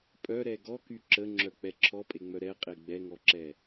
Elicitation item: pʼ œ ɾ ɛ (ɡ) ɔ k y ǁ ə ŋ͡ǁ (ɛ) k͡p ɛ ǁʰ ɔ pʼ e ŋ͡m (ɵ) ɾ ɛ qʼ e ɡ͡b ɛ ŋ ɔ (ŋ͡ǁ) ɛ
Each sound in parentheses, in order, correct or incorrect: correct, incorrect, incorrect, incorrect

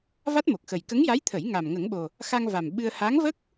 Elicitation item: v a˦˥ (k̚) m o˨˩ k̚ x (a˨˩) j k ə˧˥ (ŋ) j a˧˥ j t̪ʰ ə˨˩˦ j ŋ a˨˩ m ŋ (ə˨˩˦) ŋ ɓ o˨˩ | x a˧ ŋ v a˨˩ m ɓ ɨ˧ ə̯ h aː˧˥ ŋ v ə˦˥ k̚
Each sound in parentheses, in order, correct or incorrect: incorrect, incorrect, correct, correct

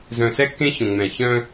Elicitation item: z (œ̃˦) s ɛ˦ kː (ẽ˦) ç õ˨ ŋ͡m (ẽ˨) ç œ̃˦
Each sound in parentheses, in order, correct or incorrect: incorrect, correct, incorrect

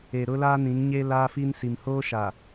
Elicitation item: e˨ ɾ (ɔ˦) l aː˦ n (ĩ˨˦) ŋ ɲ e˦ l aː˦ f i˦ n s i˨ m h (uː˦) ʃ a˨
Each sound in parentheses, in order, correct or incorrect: incorrect, correct, incorrect

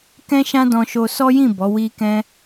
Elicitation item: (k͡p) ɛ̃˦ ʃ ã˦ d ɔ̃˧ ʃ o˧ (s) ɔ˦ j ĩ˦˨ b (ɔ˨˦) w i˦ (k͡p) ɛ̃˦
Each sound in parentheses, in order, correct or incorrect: incorrect, correct, correct, incorrect

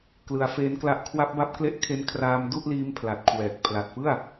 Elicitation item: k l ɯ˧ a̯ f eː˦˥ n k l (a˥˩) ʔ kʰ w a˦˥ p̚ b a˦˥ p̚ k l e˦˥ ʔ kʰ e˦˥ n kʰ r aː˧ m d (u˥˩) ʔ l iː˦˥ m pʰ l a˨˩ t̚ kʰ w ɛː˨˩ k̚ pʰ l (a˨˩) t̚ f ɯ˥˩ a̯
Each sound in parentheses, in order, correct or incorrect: incorrect, correct, correct

